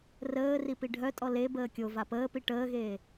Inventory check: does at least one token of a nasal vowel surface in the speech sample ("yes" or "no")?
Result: no